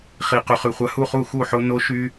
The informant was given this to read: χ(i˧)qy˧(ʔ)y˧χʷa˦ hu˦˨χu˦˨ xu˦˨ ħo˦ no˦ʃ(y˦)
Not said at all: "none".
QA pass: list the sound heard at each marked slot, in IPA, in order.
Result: i˧, χ, y˦

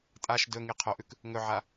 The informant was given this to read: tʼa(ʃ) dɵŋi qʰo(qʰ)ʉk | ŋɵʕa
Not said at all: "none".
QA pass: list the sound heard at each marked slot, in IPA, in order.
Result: ʃ, ʔ

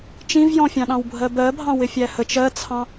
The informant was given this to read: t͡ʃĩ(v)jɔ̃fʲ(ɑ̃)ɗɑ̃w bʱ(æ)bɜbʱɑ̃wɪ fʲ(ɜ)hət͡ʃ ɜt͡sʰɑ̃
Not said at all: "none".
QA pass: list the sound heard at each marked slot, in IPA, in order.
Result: v, ɑ̃, ɜ, æ

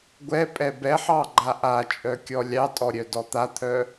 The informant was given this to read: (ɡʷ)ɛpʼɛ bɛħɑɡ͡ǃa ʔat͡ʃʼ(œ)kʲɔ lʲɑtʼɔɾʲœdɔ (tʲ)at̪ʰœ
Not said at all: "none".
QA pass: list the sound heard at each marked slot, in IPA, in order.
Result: ɡʷ, œ, t̪

